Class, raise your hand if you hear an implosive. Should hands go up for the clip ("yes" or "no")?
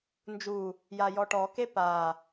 no